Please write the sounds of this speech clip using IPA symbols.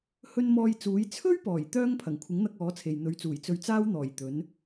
hɵ˧n mɔː˧jt͡suː˨˥j t͡sʰɵ˥ɥpɔː˨˩jt̪œː˧ŋ pʰɐ˨˩ŋkʷʰɪ˨˥ŋn̪ɐ˧k̚ ɔː˨˥t͡sʰe˨j n̪ɵ˨˥ɥt͡suː˨˩j t͡sɵ˧ɥ t͡saː˥w n̪ɔː˨˩jt̪ɵ˨˥n

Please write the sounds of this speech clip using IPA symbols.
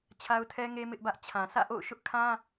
t͡ɕʰa˦ʊ̯tʰɛ˦ŋe˦ mɪ˦ʔbä˦ʔ t͡ɕʰã˨sä̰˦˨ʔo̰˦˨ʊ̯ ʃʊ˦ʔkʰã˦

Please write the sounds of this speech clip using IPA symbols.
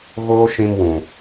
ɣoː˦ʃĩ˧mwũ˨

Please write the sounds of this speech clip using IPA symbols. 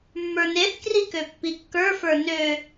mːə˞neθkri køpːikːə˞fə˞ nø

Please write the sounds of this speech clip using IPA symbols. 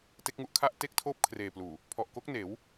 te˦˥k̚ŋu˦˥ʔkʰa˥˩ʔ te˥˩k̚tʰoː˥˩p̚ kʰreː˨˩pluː˨˩ | pʰɔ˨˩ʔko˦˥k̚neː˩˦w

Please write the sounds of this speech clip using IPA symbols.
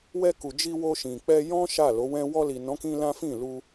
wɛ˧ku˨d͡ʒi˧ wo˧ʃĩ˨k͡pɛ˧ jɔ̃˦ ʃa˦˨lo˨˦wɛ̃˦ wɔ˧li˨nɔ̃˨˦kĩ˧ lã˦fĩ˦˨ lu˧

